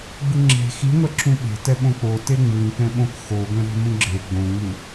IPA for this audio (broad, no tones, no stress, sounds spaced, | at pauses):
ɡ͡b ɯ ŋ͡ǁ e̤ x i ŋʷ ɛ ǁʰ ũ ɓ e̤ t ɛ ɓ õ k͡p o t e ŋ͡m ɯ ŋ k ɛ̃ ɓ õ k x o ɡʷ ɛ̃ ɾ e̤ m ũ ɡ͡ǁ e ɡ͡b õ ŋ͡m u